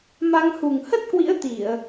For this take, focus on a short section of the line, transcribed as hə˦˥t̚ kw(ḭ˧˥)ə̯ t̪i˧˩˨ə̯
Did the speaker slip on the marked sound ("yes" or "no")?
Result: no